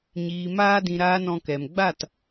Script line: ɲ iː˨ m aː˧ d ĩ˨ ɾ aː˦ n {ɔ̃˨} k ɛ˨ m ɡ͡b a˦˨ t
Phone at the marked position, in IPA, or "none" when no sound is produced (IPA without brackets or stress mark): ɔ̃˧